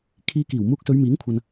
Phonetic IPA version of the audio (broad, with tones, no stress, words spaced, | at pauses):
kʰiː˧kiː˨˩w muː˧k̚sɵ˨˧ɥmiː˨˥ŋkʷʰɐ˨n